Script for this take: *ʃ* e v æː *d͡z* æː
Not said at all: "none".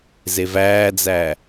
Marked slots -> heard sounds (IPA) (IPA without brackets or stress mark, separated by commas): z, d͡z